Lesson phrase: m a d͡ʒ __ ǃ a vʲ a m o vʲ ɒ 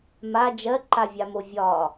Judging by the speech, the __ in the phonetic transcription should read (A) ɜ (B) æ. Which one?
A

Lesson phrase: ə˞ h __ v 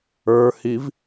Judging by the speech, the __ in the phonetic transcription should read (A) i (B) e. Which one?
A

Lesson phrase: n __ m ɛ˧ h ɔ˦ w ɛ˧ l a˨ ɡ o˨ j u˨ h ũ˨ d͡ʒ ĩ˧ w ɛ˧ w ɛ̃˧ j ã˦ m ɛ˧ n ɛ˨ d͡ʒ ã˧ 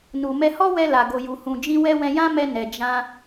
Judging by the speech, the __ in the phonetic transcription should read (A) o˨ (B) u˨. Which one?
B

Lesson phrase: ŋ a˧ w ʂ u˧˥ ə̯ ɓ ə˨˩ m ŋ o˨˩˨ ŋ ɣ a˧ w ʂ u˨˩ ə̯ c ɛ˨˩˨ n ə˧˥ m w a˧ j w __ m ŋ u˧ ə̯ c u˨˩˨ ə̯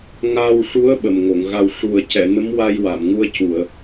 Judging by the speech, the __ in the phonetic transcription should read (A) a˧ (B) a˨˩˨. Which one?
B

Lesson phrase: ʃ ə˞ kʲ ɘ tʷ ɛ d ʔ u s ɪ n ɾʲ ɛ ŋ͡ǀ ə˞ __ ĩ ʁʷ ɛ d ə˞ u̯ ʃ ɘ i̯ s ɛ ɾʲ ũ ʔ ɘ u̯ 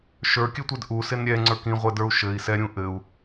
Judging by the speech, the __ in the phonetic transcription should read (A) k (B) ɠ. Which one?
A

